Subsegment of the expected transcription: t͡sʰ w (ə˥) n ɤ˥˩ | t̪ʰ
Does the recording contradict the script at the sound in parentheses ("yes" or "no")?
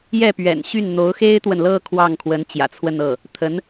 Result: yes